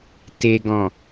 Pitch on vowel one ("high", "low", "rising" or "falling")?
low